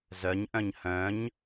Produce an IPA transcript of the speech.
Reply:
z œ ɲ ʔ œ̃ ɲ h œ̃ ɲ

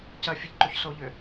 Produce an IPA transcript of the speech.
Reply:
c ɐ fʲ ə ʎ ǃ o ç s o ʎ ʏ

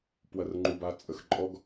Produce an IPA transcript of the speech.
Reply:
p w ɐ˨ r ŋ͡ǃ u˨ b a˨ t͡sʼ ə˨ x ǃʼ ɔ˦ ɡ

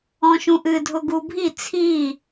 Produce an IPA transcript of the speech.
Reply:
ɔ̃ ʃ ũ ʔ ɨ dʱ ʊ ɡ u bʱ i t͡sʰ i

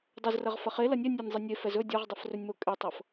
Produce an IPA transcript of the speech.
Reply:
dˤ ɵ z r ɐ ʁ f ɐ χ e l ɐ nʲ ɛ nʲ ɐ nʲ zˤ ɐ nʲ e f ɛ z ɵ dʲ ɤ ʁ dˤ ɐ f r ɵ nʲ m o kʼ e tˤ ɤ f

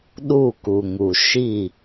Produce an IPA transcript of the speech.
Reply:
ɗ u˦˨ k u˨ ŋ u˨ ʃ i˦˨

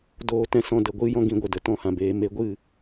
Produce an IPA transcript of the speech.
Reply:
d oː˧ t ɛ̃˧ s ɔ̃˧ d ə˨ ɡʷ ɨ˦ j ɔ̃˦ ɡ ĩ˧ ɡʷ ə˨ d ə˨ t ɔ̃˧ h ã˨ b eː˧ m e˧ ɡʷ ɨ˦˨

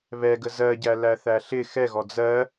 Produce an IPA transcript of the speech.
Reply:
β ɛ ɡ ə z ɜ ɟ æ l æ θ æ ɬ ɪ x ɛ ɣ ɔ d͡z ɜ

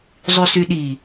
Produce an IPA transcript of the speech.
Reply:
zˤ y s y ɗ i

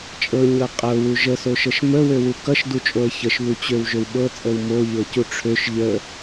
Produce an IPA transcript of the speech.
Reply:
t͡ʃʼ ɤ ɲ ɤ qʼ ɤ w u ʒ ə s o ʃ ɤ ʃ m ə w ø w u k ʌ ʃ d u t͡ʃʼ o ə̯ ç ə ʃ β u t͡ɕ ø w ʒ ø w ɓ ɤ t͡sʼ ə w m o ʎ ɤ c u ʈ͡ʂʰ ø ʃ ʎ ə

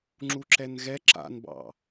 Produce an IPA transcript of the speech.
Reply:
ŋ͡ǁ u ǁ ɛ n ɣ ɛ ǁ a̰ n b ɑ̰

